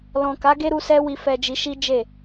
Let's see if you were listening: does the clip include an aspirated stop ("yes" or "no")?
no